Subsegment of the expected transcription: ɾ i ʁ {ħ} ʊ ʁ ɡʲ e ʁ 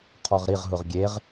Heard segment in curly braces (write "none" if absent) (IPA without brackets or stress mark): ɦ